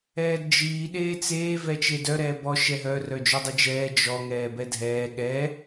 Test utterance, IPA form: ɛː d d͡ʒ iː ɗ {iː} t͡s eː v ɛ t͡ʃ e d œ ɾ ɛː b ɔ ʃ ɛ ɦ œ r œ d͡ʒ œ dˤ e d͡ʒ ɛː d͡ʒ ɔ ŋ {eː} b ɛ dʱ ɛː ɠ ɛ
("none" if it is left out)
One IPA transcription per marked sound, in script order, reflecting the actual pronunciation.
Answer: eː, ɛː

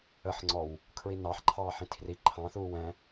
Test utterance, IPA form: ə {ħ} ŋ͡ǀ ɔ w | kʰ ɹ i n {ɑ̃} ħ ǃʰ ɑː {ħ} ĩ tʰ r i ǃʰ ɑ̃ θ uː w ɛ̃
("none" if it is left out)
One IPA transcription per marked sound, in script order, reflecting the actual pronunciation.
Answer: ħ, ɑ, ħ

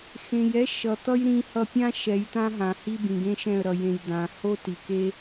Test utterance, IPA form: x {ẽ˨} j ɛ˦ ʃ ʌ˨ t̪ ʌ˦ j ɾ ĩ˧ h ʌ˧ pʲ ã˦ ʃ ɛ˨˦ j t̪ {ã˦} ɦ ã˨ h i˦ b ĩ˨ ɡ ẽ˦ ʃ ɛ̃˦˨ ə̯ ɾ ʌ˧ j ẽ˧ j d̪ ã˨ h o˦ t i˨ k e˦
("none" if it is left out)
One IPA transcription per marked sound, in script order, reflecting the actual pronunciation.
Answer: ẽ˨, ã˦

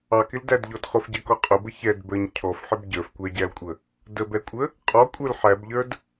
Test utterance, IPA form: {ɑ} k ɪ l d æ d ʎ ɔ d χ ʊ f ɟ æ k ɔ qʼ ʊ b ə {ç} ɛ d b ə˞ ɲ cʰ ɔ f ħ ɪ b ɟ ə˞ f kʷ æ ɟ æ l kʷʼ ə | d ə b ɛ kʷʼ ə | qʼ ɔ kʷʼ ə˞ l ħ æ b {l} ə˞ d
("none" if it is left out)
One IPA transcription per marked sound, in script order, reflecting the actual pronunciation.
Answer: ɑ, ç, ʎ

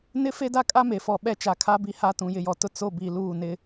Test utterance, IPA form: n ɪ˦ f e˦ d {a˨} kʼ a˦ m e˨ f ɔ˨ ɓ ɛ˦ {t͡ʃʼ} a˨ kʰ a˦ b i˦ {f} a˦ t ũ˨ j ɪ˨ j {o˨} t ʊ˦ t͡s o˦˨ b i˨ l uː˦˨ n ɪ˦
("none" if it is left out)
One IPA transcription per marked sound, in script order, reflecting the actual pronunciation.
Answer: a˦, t͡ʃ, h, ɔ˨

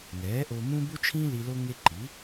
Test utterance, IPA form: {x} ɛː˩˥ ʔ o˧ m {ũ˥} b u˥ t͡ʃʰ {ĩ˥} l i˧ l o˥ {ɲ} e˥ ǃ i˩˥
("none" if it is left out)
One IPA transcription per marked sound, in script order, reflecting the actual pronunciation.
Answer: ŋ, ũ˥, ĩ˥, ŋ

